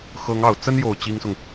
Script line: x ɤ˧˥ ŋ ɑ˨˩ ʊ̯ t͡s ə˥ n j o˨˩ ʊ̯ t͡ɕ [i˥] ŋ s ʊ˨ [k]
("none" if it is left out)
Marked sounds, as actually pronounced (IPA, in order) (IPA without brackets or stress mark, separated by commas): i˥, ŋ